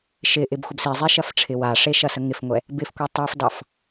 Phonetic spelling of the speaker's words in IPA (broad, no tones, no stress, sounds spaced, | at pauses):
ʃ ɪ ʔ ɪ b xʷ ə b s i zˤ e ʃ ɐ f ʈ͡ʂʰ ɪ w a ʂ e ʃ ɐ s ə ŋ ɪ f ŋʷ ɛ | b ɪ f kʷ e tˤ i f d ɑ f